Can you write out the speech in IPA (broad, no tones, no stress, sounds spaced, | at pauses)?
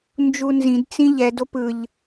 n d͡ʒ u n z ĩ d t͡s ĩ ʎ ɛ d o p ɯ ʎ